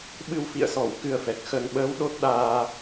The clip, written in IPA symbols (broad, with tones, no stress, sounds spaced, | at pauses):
ɓ ɨ˧ w f ḭ˧˨ ə̯ s ɔ˧˩ w k ɨ˧ ə̯ f ɛ˨˩ k̚ x ə˨˩ n ɓ əː˨˦ w ɗ o˦˥ t̚ ɗ aː˧